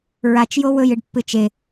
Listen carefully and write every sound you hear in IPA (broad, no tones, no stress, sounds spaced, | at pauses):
ɹ a t͡ʃ j o w ɵ j ɨ ɖ pː ɨ t͡ʃ e